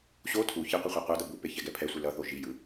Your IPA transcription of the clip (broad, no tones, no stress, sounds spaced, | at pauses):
ɕ o tʰ u ç i qʷ i χʷ a qʷ a d ʌ b u p e ç ɛ ɡ ɛ pʰ ɛ sʷ ɯ l ʌ θ o ʒ i j ɯ